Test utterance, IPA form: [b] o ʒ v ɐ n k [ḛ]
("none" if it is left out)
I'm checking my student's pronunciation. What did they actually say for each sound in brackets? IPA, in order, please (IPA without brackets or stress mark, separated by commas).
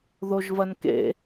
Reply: ð, ḛ